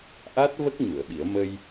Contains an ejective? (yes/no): no